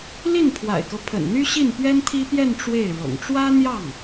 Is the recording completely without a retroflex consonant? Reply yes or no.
no